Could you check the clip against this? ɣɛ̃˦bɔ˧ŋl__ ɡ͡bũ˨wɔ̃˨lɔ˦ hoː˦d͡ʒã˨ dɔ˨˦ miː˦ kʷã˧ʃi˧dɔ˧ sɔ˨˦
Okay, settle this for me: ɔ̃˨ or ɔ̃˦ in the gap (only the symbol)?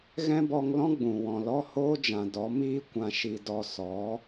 ɔ̃˦